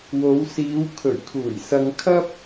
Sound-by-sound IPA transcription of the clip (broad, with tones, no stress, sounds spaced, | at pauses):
w o˨˧ w s iː˨˧ w kʰ ɵ˨˩ ɥ kʰ uː˨˩ j s ɐ˧ ŋ kʰ ɐ˥ p̚